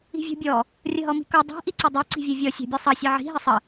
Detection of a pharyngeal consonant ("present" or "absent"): present